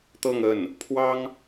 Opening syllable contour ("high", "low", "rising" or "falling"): falling